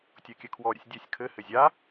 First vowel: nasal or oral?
oral